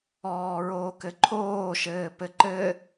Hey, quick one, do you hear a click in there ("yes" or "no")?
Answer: yes